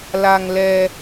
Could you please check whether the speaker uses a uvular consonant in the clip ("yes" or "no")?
no